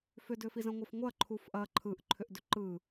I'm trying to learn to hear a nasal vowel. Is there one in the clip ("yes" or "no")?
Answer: yes